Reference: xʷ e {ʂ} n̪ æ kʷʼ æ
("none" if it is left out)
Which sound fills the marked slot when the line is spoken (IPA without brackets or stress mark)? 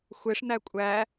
ʂ